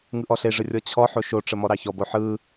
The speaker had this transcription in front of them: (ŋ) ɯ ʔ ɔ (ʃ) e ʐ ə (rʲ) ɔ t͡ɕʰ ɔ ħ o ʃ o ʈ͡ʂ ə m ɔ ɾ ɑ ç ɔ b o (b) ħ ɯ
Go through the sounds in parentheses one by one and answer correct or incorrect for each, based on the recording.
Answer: correct, incorrect, correct, incorrect

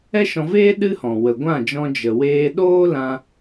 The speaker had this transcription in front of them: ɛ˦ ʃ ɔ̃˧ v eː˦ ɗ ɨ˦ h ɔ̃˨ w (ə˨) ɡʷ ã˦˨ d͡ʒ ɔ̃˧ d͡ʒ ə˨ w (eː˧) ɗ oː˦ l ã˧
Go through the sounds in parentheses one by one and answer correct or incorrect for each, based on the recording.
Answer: correct, correct

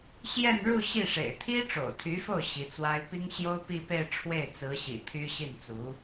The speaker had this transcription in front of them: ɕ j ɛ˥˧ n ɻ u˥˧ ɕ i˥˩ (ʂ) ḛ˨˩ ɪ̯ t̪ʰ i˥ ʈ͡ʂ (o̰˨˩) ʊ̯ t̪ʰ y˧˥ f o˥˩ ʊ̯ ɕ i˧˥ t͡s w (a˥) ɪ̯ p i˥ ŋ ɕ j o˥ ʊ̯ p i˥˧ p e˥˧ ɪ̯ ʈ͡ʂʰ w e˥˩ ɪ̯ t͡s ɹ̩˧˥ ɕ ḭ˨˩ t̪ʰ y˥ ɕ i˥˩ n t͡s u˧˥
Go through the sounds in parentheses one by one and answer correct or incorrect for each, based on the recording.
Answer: correct, correct, correct

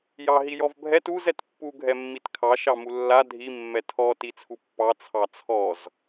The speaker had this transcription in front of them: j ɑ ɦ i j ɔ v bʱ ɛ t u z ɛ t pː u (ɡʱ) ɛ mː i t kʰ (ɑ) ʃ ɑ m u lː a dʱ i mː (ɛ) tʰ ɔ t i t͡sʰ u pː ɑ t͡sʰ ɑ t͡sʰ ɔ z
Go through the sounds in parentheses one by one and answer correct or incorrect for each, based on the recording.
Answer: correct, correct, correct

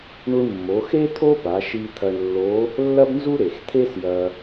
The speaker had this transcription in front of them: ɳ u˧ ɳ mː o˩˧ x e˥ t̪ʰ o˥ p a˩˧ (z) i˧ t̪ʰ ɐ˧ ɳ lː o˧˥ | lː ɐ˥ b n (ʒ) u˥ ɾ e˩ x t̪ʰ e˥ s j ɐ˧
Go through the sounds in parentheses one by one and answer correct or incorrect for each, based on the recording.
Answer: incorrect, incorrect

